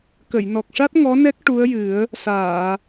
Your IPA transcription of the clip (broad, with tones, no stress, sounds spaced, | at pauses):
k ə˨˩˨ j n ɔ˨˩ k̚ ʂ a˦˥ t̚ ŋ ɔ˧˥ n ɛ˦˥ k̚ ʈ u˧˥ ə̯ j ɨ˨˩˦ ə̯ | s aː˨˩˨